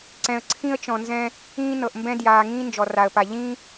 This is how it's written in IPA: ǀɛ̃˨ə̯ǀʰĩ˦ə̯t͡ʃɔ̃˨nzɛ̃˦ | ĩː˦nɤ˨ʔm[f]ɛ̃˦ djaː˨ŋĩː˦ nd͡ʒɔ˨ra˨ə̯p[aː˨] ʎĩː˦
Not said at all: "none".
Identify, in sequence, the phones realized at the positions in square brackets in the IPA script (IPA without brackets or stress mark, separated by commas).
b, a˨